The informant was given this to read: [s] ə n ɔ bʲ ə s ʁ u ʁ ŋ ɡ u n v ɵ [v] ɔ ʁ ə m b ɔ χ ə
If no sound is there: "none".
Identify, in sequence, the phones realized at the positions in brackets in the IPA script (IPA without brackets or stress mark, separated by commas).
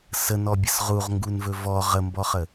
s, v